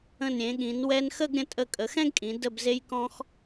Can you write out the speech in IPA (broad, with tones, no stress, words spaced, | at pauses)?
ə̃˧˩nɾʲẽ˩˧ɠĩ˩˧n wɛ˧nxə˥˧ɡɾʲə̃˧ tʼə˧˩kʼə˩˧xɛ̃˥ɡkʼĩ˩˧ də˧˩bze˧jkɔ̃˧x